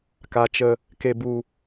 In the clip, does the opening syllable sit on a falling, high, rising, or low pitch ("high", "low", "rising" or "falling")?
low